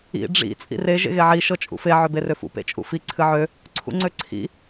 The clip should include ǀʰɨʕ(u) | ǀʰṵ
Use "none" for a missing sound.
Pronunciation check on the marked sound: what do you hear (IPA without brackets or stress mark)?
ø